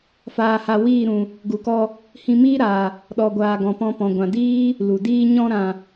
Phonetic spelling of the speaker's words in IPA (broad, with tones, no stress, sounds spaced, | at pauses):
f aː˧ h a˧ w iː˦˨ ɾ ũ˨ | ɡ u˨ k ɔ˧ | h ĩ˧ m iː˦ ɾ aː˨ | ɗ ɔ˨ ɡʷ aː˨ ɡ ɔ̃˨ p ɔ̃˧ p ɔ̃˨ ɡʷ ã˨ d iː˦ | l u˨ d iː˧ ɲ ɔ̃˧ ɾ ã˨